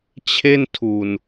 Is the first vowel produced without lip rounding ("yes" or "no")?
yes